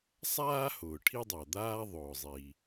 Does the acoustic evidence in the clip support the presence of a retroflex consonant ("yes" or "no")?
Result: yes